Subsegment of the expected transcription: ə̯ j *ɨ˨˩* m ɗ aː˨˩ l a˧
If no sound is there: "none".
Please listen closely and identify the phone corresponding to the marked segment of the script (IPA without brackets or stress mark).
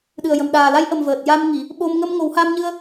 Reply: ə˨˩